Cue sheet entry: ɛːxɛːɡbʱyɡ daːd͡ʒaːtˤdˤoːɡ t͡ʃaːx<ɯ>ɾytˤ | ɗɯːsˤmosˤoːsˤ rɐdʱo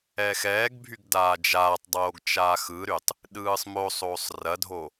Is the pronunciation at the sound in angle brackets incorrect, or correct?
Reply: correct